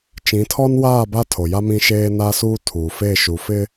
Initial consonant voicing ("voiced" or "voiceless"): voiceless